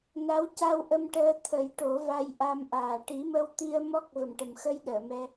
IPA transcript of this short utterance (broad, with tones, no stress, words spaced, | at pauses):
na˧˥w ca˧wʔə˧m ʈəː˧t̪ʰə˨˩˦j ʈo˨˩˦va˧j ʔa˧mʔaː˨˩ ʈi˨˩˦mə˧wt̪i˧ə̯ mɔ˦˥k̚ və˨˩mʈə˨˩mxə˧jɗəː˨˩˨ mɛ˧